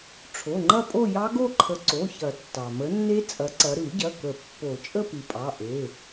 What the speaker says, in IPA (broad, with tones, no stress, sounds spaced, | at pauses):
ʈ͡ʂʰ o˩˧˩ ŋ͡ǃ ɐ˥˧ pʼ o˥˧ j ɑ˦˥ ɡ o˥˧ ǃʰ ə˨˦ ǀ o˩˧˩ ç ɐ˨˩˦ tː ɑ˩ m ə˨˦ nː e˦˥ t͡sʼ ɐ˨˦ ǀ ɐ˨˦ ɾ ɯ˨˩˦ ɟ ɐ˩˧˩ k ə˨˩˦ pː o˨˩˦ t͡ʃʼ ə˥˧ p ɨ˩ pʼ ɑ˩˧˩ ʔ e˩˧˩